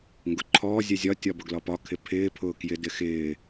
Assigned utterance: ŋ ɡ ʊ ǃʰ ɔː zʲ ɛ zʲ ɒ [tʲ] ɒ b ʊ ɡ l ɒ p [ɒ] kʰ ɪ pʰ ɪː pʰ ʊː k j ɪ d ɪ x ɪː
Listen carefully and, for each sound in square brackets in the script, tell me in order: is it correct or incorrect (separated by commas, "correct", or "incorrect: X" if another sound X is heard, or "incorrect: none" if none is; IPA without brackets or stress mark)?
correct, correct